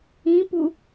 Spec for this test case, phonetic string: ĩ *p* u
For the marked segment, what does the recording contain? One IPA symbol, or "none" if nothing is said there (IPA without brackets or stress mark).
p